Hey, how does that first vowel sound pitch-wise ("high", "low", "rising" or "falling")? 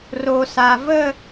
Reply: low